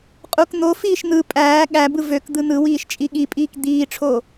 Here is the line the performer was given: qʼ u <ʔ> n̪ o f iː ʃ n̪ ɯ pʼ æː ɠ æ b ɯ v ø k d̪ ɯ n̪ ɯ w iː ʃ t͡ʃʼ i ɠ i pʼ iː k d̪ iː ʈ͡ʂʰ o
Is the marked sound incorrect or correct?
incorrect